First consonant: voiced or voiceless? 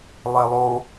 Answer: voiced